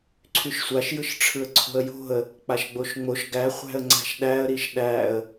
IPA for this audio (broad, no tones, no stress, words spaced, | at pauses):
ǀʰyʃsʷaʃ jɯʃʈ͡ʂʰɯə̯ǀʰo̤ə̯jo̤ə̯ | k͡paʃɡ͡boʃŋ͡moʃ ɡæ χʷæ̤ə̯ŋ͡ǀæ̤ʃɗæə̯ ɾiʃɗæə̯